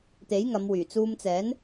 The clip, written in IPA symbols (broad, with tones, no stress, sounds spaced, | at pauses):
t̪ e˨˥ j ŋ ɐ˨˧ m w yː˨˩ t͡s uː˨ m t͡s ɛː˨˥ n